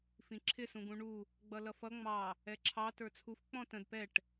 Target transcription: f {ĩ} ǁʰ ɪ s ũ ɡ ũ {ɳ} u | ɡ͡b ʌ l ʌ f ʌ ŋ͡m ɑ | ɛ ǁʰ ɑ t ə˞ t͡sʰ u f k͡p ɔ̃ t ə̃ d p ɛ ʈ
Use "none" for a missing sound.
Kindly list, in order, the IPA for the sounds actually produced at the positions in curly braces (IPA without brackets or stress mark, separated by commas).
ĩ, ɳ